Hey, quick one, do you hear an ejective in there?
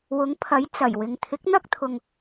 no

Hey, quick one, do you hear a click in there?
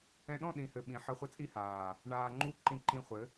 yes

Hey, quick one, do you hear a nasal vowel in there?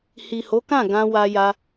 yes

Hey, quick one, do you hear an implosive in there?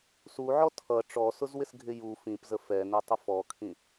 no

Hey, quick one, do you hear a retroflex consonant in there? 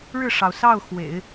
yes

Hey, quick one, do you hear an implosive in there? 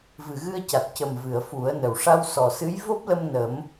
no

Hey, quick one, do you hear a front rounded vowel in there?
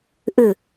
yes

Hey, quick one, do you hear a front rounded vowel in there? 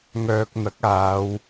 yes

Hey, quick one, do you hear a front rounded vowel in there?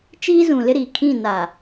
no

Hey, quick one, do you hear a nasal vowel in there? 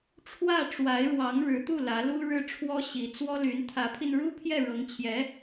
no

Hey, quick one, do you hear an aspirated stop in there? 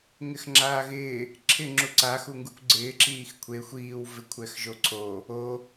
yes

